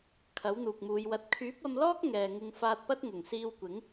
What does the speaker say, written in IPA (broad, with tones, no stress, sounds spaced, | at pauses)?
kʰ ɐ˨˥ w n̪ uː˨ k̚ m uː˨˧ j w ɐ˧ t̚ kʰ yː˨˥ p̚ ɐ˧ m l ɔː˥ k̚ ŋ ɛː˨ ŋ ɪ˧ ŋ f aː˧ t̚ p ɐ˥ t̚ ŋ ʊ˨˩ ŋ s iː˧ w kʷ ɪ˨˥ ŋ